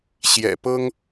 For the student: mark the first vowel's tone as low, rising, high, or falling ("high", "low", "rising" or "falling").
low